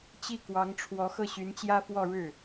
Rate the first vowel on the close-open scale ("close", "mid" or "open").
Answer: close